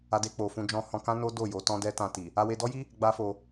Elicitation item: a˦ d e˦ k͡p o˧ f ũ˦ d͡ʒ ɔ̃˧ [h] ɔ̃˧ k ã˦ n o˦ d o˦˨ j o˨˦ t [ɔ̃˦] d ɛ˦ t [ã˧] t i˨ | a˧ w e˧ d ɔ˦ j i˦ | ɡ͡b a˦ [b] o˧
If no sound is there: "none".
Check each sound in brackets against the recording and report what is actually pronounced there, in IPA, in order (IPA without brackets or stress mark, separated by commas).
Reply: h, ɔ̃˦, ã˧, f